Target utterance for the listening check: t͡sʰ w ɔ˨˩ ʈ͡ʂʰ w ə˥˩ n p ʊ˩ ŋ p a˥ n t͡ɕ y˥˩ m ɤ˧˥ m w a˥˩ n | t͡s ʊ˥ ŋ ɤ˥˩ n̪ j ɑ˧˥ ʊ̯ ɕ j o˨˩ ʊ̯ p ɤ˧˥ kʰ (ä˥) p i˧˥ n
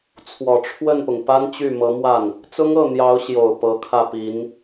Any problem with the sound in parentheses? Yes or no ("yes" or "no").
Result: yes